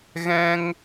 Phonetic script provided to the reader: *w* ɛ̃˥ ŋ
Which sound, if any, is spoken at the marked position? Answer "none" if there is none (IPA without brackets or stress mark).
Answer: ɣ